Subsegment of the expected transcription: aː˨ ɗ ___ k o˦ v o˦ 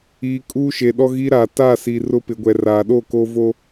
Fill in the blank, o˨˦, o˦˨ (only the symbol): o˦˨